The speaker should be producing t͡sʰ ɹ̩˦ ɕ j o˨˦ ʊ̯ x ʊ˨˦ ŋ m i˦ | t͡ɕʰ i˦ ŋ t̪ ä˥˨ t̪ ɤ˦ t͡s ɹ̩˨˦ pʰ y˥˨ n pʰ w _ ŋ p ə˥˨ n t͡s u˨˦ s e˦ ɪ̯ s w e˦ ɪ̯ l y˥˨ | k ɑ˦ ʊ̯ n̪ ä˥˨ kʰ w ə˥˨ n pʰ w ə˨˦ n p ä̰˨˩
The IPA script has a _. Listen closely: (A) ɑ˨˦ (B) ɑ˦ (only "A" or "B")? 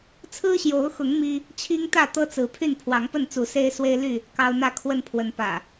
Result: A